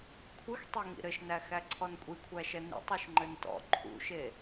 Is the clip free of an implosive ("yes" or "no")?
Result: yes